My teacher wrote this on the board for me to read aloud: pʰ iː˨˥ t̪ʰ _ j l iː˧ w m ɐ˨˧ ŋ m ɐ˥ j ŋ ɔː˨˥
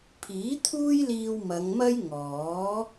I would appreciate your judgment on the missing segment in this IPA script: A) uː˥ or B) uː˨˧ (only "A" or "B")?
A